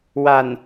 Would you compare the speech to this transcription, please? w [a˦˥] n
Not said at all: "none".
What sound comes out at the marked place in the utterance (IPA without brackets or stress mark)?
a˨˩